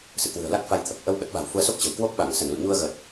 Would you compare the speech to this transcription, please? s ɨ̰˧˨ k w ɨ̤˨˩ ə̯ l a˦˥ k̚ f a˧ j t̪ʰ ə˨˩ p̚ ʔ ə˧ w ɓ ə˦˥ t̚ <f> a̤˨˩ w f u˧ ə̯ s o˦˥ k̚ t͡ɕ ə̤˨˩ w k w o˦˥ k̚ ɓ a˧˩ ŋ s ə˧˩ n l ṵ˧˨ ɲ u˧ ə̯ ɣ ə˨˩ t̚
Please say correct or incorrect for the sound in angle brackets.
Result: incorrect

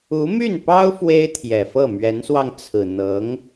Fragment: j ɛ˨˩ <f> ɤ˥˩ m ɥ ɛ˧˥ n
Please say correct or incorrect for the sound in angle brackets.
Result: correct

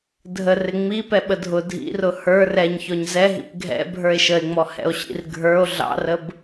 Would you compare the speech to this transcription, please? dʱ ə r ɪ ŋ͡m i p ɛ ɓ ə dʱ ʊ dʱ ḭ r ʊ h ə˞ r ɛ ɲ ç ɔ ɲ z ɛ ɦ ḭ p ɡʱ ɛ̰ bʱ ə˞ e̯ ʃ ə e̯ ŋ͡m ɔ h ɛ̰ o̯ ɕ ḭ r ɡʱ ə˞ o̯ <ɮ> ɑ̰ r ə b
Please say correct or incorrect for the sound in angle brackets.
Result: correct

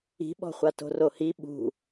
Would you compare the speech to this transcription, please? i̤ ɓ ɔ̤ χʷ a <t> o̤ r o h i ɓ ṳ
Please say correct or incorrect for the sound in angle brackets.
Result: correct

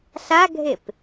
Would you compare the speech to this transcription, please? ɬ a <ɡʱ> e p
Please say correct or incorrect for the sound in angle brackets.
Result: correct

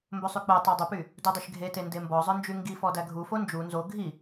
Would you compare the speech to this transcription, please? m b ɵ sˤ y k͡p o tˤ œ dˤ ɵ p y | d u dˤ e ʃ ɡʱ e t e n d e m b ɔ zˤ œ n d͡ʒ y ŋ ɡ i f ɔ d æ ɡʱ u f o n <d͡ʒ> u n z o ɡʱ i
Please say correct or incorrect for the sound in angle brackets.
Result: correct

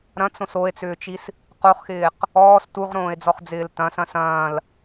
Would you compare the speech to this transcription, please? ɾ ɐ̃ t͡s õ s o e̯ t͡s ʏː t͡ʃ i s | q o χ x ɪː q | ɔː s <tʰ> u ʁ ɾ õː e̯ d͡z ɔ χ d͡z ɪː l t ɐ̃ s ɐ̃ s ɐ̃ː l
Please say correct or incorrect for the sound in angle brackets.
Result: incorrect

